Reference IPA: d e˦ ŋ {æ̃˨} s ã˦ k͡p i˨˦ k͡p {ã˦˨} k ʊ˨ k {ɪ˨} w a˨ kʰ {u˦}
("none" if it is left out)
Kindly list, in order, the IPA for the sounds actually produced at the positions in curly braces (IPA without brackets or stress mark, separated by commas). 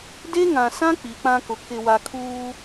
ã˨, ã˦, ɪ˨, uː˦